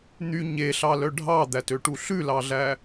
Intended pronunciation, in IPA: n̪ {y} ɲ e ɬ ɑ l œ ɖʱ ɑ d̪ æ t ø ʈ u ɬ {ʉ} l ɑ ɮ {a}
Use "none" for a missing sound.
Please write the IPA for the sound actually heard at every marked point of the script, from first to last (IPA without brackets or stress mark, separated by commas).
y, ʉ, æ